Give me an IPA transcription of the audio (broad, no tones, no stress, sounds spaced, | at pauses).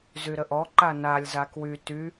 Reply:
z y ɾ ə ʔ ɔ ǃ a n a lʲ z a k w y t y